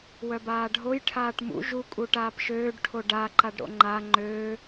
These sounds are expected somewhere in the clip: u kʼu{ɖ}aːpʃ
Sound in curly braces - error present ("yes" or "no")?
yes